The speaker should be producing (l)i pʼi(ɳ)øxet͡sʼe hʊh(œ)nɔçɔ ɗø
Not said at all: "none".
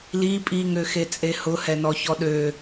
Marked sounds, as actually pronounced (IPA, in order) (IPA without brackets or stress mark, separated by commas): l, ŋ, ɛ